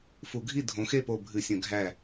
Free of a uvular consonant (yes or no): yes